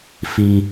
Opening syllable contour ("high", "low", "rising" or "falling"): high